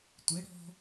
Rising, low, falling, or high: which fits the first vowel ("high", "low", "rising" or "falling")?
rising